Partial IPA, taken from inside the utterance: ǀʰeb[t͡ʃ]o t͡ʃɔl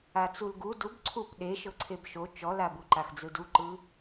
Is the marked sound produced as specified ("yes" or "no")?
no